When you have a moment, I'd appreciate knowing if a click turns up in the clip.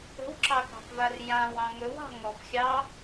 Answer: yes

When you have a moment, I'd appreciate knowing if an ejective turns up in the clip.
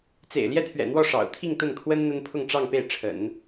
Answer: no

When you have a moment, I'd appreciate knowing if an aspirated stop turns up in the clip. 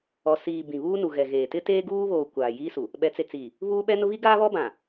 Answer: no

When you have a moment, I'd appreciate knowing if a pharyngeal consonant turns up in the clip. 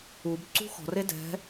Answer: no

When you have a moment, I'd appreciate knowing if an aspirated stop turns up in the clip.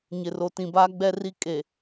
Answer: no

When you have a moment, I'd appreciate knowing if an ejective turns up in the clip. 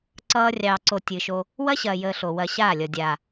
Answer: no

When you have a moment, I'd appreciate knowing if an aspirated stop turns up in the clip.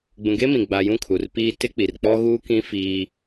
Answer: yes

